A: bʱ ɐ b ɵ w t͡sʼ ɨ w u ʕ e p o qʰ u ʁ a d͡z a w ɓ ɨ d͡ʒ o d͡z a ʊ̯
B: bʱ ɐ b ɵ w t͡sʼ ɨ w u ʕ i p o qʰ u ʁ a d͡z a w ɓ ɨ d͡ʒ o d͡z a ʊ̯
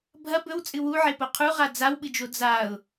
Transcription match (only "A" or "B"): A